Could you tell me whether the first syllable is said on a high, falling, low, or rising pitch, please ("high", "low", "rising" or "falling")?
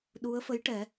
rising